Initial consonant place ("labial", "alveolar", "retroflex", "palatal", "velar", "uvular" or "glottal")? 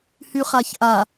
glottal